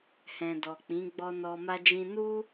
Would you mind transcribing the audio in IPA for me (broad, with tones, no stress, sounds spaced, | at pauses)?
h ɛ̃˨ d ɔ˨ k͡p ĩ˨˦ ɡ͡b ɔ˧ n ɔ˧ m a˦ d͡ʒ ĩ˦ n u˦